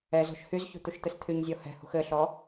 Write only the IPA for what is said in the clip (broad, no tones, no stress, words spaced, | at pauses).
ɛzɔ̤ʃ hyzçṳ t̪uʃt̪ɘst̪ʰyɲzʲɔ hɛ̤hṳx ɘɬɔ